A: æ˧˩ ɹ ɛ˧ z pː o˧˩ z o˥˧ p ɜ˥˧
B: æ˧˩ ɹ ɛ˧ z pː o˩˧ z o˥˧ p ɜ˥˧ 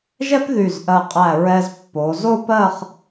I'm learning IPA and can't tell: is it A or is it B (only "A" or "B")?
B